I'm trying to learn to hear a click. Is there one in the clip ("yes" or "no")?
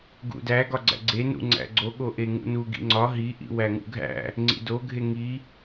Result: yes